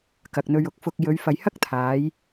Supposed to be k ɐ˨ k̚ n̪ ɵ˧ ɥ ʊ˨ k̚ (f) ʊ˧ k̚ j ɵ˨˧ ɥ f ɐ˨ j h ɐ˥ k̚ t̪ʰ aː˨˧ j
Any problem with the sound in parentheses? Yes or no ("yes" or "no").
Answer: no